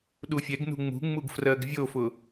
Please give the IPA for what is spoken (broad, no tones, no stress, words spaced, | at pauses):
ɗufʲɛɡnṳ ŋ͡mṳŋ͡muɡ frɜɡvʲofʊ